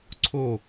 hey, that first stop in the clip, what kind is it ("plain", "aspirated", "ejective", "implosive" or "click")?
click